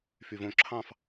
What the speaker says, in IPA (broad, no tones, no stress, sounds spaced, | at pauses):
f y v õ ǁʰ ɑ̃ f